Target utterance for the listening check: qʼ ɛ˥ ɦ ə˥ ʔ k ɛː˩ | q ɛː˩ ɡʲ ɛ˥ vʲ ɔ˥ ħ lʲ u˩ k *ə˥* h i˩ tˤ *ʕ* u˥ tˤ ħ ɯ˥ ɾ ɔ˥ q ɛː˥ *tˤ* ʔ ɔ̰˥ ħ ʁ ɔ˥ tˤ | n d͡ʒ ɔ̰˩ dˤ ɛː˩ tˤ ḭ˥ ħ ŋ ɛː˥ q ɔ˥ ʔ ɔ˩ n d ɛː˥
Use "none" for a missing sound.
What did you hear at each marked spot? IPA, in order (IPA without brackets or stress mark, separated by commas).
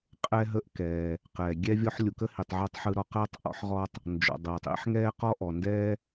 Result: ə˥, ʕ, tˤ